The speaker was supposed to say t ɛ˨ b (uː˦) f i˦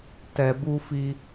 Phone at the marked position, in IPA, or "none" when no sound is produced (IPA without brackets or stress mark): u˦